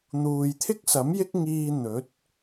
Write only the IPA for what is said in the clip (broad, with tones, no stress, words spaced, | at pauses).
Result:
n̪uː˨jt̪ʰɪ˥k̚sɐ˨˥m jɪ˥k̚ŋiː˧ n̪ɵ˨˥t̚